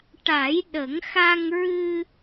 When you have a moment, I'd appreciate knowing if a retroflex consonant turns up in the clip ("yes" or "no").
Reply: yes